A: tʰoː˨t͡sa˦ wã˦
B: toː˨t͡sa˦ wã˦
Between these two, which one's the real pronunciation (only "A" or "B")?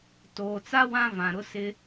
B